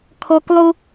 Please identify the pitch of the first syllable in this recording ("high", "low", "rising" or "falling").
low